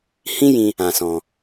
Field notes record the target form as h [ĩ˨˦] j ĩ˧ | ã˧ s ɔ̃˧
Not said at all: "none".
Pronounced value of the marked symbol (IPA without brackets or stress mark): ĩ˦